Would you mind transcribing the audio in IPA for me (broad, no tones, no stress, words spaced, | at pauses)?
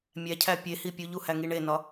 mʲæcʰæ pʲehi pʲuʎu hæŋiɳenɒ